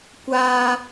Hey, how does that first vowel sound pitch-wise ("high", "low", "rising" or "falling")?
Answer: high